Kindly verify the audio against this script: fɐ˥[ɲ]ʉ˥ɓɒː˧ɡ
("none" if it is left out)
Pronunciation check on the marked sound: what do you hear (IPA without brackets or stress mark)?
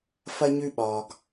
ɲ